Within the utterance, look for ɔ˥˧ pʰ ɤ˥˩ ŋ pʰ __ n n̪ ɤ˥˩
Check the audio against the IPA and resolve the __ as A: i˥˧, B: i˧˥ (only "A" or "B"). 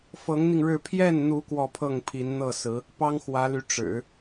B